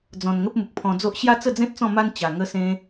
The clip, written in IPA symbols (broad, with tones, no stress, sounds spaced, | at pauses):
d͡z ɔ̃˨˩ n ŋ ə˦ p̚ m u˨ k̚ pʰ ɔ̃˧ d͡z o˦ ʔ ɕ j a˦ t͡s ə˥˧ d͡z ẽ˦ t̚ t͡s ɔ̃˥˧ m a˦ n t͡ɕ a˨˩ ŋ ə˧ s ẽ˧